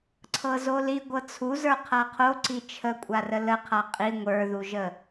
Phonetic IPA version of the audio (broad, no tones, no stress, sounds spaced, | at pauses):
ǀʰ ɤ z o l i ɡʷ ɤ t͡sʰ u z ə˞ qʰ a qʰ o ǀ i t͡ʃʰ ə kʷʼ a r ə l ə qʰ a qʼ i ŋʷ ə˞ ð u ʒ ə